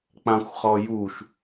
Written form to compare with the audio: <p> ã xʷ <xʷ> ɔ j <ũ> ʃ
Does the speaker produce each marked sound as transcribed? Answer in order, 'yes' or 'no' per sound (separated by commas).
no, no, no